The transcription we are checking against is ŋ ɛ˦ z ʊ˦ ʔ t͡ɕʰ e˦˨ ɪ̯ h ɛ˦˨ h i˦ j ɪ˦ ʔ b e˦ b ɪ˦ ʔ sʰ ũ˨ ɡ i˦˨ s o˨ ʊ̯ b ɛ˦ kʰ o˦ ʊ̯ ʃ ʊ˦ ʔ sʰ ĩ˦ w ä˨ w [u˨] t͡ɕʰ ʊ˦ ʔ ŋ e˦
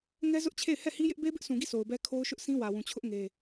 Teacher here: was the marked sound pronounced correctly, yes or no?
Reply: no